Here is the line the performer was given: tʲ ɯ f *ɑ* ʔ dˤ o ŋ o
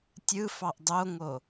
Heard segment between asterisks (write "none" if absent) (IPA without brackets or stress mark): ɑ